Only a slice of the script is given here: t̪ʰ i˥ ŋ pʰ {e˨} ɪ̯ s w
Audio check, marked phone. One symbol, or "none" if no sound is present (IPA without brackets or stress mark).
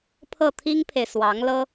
e˨